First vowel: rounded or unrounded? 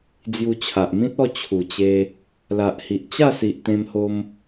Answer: rounded